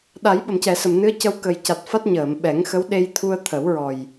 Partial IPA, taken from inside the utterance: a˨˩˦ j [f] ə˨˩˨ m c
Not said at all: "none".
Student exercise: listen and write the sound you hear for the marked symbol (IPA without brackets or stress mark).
ɓ